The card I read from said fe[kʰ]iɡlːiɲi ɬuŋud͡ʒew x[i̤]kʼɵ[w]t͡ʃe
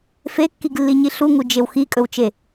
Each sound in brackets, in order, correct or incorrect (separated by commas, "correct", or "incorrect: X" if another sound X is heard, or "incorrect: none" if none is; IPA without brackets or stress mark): incorrect: kː, incorrect: i, correct